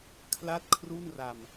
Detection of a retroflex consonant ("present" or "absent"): absent